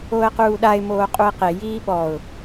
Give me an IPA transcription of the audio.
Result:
o ə̯ q uː ɗ a ɪ̯ m oː qʼ u ɪ̯ q e j iː ɓ ɔ ʊ̯

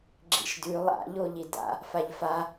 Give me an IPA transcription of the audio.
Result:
ɡ͡ǁ ḭ ʃ d ʉ lˠ a̰ ʎ o ʎ i d a̰ | f a ʎ f a

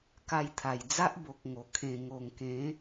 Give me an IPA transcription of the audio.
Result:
k a˧ j t̪ʰ a˨˩ j d͡z a˦ ʔ b o˨ k̚ ŋ o˨˩ kʰ ẽ˨˩ ŋ o˨˩ ŋ k ẽ˨˦

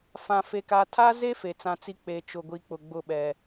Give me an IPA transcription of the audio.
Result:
f ã˦ f e˦ k a˦ tʰ a˦ z e˦ f e˨ t͡s ã˦ t͡s i˦ k͡p e˦ t͡ʃ ʊ˦ ɡʷ i˦ k͡p ʊ˨ ɡ͡b ʊ˦˨ ɓ ɛ˨

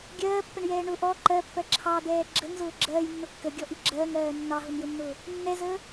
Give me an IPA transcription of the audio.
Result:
ɡʲ ɜː pː ə ɳ j ɛː ɳ ʊ ʔ ɔ ǃ ɜ pː ɜ ǁʰ ɑ d̪ ɛː ɡ͡ǁ ə ŋ z ʊː ɡ͡ǁ ɜː j nː ʊ kː ə ɡʲ ɔ ʔ i ɡ͡ǁ ɜː ŋ ɜː nː ɑ ɦ ʊ n j ʊ nː ʊː | nː ɛ z əː

